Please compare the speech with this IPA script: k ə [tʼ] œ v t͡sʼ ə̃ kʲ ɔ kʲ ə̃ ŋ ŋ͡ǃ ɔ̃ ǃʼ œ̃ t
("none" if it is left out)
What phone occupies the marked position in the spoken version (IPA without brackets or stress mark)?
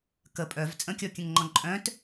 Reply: pʼ